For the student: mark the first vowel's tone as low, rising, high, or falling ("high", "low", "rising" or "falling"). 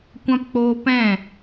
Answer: high